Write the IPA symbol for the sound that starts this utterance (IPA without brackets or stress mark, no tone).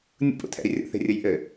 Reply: nʲ